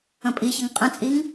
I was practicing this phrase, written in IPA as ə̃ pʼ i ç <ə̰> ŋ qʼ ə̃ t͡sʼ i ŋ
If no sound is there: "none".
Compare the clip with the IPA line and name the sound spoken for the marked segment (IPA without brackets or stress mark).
ə